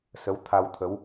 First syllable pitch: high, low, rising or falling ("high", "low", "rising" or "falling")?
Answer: rising